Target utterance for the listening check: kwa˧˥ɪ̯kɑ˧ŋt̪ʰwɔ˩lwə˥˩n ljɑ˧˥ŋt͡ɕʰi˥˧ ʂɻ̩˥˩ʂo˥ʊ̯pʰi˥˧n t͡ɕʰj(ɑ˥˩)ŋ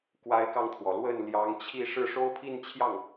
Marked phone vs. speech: correct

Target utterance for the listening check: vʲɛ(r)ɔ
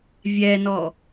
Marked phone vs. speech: incorrect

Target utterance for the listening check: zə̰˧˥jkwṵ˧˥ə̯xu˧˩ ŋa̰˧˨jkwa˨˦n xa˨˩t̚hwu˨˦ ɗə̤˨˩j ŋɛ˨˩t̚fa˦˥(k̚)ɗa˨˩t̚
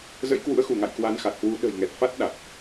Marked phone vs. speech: incorrect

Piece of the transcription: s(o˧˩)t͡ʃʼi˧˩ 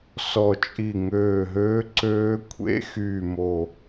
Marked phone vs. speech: incorrect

